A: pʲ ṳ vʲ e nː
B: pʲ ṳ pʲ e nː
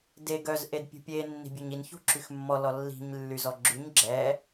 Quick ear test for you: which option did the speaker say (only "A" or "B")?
B